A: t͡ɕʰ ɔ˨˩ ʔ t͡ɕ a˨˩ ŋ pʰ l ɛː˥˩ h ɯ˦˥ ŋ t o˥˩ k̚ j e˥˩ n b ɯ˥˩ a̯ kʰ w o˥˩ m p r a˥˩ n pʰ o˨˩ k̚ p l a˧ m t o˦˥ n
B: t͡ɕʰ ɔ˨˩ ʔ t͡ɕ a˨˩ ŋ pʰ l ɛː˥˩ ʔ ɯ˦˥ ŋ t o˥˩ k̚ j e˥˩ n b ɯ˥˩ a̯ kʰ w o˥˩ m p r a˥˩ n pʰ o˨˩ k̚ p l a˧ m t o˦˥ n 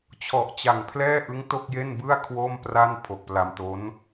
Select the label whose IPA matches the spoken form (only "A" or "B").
B